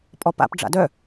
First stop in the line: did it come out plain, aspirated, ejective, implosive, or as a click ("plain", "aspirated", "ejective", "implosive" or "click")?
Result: ejective